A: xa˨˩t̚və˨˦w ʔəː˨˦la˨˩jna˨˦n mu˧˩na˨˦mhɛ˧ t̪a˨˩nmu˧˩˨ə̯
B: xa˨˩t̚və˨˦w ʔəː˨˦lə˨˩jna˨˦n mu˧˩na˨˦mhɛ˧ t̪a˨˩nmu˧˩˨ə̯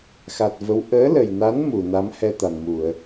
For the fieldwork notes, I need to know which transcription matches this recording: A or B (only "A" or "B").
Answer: B